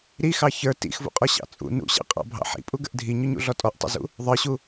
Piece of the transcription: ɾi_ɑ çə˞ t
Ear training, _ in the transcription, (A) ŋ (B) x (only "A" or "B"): B